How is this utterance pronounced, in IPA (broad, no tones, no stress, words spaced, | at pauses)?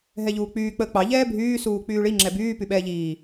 ɦɛʎuːk͡pyː k͡pəːk͡pɑ ʎɛːbʱyː suːk͡pyːɭi ŋ͡ǁɛbyː pyɓɛːʎiː